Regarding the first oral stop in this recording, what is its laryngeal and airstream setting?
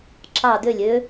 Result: click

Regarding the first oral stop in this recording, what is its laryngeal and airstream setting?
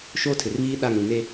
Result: aspirated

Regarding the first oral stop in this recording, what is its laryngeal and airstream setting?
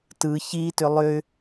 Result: plain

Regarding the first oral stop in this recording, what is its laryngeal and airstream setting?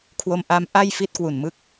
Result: aspirated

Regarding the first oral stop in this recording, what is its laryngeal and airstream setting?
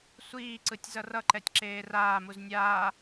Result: click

